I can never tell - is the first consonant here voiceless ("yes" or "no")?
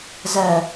no